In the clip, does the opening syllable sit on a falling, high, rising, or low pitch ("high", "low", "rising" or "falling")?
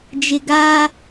low